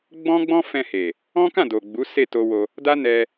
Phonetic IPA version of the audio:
ɡ͡bɔ̃˦ɡ͡bɔ̃˦fɛ̃˧he˨ | ɔ̃˦kã˦˨do˨ ɡ͡bu˨˦ se˦˨to˧wo˧ | da˦nɛ˧

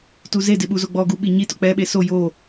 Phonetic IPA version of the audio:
tuzedɪ ɓuzoɡ͡bɔɡu ɓiɲitʊ k͡pɛɓe so jo

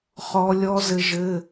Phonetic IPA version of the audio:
χɔ˦˥ lʲɔ˦˥ zɘ˦˥ʒɘ˧˥˧

